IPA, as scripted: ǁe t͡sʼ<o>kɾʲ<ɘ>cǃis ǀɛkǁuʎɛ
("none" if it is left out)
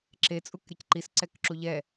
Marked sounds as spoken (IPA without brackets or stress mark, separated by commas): u, ɘ